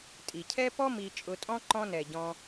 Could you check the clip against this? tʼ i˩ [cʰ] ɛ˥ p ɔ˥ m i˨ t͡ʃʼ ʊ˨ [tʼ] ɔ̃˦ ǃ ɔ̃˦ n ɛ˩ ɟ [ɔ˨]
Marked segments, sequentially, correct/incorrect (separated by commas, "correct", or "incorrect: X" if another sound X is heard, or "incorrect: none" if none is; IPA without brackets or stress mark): correct, correct, incorrect: ɔ̃˨